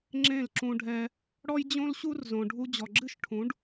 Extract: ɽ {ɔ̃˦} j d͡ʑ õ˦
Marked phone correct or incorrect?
incorrect